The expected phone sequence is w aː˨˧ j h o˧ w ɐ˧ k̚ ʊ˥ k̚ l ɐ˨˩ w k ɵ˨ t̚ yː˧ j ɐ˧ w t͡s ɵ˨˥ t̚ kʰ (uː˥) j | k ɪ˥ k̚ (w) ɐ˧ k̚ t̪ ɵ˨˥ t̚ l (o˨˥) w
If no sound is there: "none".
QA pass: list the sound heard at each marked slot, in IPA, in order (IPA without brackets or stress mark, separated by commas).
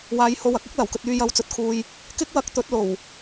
uː˧, w, o˨˩